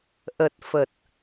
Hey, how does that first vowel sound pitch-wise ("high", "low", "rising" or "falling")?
low